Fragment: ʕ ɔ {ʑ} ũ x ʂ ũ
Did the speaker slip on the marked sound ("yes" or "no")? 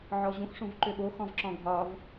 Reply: no